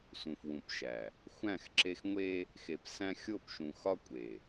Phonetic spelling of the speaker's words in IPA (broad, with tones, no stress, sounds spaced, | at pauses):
s ũ˨ f w ũ˨ p ʃ æ˨ | xʷ æ̃˦˨ x ǁ e˦ x ŋʷ e˦ | x e˨ p s æ̃˦ xʲ o˦˨ p ʃ ũ˨ x ɒ˦ kʷʼ e˨